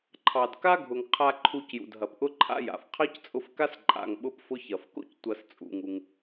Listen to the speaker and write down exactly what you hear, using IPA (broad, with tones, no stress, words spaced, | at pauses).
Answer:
ǃʰɑ˨dka˦ɡʱʊ˨ŋ qʰa˧ ǃʰu˧cjṵ˨d ɦɐ˨pʔʊ˦ǃʰa̰˦ja̰˨f qʰɑ˦ct͡sʼʊ˧fka˦s ǃʼa̰˧ŋɓʊ˦pfʊ˦ çɐ˨fko̰˦ctʷɐ˧s t͡sʼṵ˦ŋu˦ŋ